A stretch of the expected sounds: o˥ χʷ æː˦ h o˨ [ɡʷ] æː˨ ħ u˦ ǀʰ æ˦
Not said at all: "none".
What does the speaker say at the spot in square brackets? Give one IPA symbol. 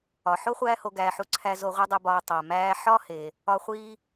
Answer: ɡ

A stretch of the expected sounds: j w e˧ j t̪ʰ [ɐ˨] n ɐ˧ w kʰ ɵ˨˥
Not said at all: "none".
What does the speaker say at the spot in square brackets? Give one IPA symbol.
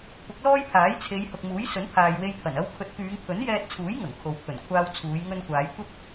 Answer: ɐ˨˩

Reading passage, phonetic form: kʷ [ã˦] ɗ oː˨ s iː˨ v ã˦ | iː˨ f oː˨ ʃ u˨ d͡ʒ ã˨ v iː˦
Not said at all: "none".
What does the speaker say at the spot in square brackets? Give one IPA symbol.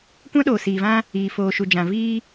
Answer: ã˦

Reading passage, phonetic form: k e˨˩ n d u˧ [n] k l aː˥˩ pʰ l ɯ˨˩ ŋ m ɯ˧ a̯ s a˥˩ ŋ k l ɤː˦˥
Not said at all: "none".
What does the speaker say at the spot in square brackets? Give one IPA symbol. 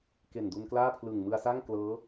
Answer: n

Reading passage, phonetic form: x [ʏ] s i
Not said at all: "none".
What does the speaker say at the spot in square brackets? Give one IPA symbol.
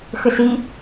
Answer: ʏ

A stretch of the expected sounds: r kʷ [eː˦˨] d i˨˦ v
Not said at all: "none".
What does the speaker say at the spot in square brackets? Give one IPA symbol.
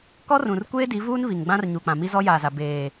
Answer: eː˦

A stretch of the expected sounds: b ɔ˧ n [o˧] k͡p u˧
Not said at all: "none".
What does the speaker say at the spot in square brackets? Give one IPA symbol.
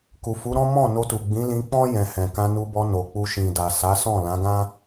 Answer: o˨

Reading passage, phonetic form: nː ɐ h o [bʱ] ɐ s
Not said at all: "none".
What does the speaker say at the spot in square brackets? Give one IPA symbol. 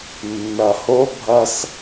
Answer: bʱ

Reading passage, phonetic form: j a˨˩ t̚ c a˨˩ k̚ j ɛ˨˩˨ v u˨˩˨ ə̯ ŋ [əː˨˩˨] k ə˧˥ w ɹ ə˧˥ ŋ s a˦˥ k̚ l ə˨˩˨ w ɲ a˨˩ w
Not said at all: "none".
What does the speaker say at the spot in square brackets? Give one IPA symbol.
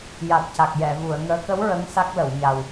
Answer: əː˧˥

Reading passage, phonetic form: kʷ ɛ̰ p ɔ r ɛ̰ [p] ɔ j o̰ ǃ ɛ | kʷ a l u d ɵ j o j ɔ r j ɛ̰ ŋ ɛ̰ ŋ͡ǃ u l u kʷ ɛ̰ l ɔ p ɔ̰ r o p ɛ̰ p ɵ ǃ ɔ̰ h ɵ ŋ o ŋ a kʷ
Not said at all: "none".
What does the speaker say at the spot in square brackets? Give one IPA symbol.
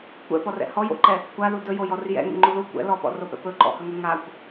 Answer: h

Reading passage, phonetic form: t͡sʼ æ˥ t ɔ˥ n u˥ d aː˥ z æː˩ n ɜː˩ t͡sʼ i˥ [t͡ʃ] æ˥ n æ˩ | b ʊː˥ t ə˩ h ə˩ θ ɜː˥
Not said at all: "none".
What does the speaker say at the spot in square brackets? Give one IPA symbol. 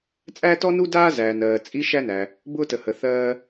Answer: ʃ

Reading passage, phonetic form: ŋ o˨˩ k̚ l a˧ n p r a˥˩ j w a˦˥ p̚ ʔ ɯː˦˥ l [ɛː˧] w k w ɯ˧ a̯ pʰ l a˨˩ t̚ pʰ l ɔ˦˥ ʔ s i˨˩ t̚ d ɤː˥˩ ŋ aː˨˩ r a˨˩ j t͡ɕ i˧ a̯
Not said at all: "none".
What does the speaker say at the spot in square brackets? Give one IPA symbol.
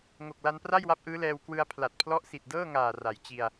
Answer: ɛː˧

